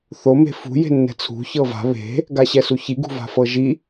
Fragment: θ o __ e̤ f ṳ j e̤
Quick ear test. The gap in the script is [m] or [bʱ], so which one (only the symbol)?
m